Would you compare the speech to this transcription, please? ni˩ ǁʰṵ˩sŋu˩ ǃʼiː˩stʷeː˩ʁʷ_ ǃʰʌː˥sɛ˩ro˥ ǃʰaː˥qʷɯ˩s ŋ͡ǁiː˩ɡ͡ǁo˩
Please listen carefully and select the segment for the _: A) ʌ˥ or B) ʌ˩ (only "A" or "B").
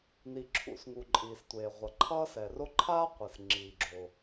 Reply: B